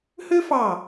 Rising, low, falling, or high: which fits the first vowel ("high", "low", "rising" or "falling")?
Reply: high